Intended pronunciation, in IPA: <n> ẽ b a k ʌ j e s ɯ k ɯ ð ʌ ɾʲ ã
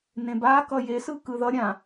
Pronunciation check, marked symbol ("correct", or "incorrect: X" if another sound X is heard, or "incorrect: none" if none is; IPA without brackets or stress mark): correct